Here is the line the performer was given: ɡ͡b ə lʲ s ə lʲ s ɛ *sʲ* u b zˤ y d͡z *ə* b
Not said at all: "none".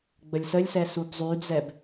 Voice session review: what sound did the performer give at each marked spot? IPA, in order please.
s, ɛ

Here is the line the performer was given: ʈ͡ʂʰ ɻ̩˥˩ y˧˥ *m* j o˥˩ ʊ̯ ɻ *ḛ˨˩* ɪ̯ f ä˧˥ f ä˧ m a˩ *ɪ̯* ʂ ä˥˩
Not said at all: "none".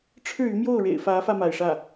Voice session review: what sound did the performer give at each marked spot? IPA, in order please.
m, ḛ˨˩, ɪ̯

